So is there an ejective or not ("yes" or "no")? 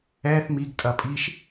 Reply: yes